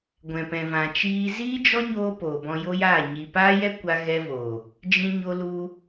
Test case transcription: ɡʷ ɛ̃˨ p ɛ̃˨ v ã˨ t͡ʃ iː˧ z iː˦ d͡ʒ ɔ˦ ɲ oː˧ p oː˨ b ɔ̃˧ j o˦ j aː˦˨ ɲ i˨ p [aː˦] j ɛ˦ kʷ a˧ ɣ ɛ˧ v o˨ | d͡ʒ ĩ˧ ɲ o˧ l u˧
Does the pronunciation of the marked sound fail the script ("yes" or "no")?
no